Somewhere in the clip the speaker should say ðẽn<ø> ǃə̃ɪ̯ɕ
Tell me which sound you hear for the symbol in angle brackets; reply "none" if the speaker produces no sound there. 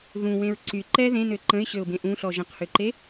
ø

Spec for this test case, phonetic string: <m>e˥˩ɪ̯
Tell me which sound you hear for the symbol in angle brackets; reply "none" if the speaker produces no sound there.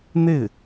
n̪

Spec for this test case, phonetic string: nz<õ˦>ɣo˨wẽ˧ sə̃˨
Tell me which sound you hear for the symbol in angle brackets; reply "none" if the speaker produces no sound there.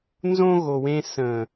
õ˦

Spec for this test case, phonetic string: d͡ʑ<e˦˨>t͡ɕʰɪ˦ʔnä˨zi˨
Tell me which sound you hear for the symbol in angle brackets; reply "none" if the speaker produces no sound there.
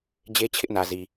e˦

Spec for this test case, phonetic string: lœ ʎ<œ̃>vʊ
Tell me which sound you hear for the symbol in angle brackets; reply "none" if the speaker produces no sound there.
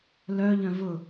œ̃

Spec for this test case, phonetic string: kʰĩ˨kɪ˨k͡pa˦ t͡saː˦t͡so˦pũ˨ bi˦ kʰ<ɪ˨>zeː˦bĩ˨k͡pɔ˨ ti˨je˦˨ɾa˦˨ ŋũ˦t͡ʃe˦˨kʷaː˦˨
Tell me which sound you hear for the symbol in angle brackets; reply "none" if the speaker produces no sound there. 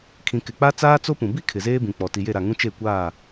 ɪ˨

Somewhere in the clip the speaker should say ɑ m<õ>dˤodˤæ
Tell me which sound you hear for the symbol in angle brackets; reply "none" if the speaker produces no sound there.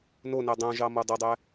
o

